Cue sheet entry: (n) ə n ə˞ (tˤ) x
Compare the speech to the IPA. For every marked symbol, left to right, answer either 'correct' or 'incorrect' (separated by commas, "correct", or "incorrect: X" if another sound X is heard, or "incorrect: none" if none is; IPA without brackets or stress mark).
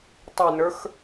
incorrect: tˤ, incorrect: none